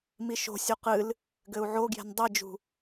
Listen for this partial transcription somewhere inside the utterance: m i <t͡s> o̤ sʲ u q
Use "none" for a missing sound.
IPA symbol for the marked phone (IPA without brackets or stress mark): ʃ